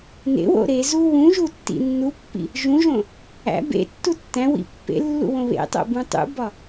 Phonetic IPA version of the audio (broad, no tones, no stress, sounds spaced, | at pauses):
n ḛ w o̰ ɾ e z u w ũ ʒ u tː ḭ nː u pː ḭ | ʒ ũ ʒ õ | æ̰ b ḛ tː u tː æ̃ w ḭ pː ḛ lː ṵ w õ β ḛ tˤ o̰ b ũ tˤ ṵ b ɒ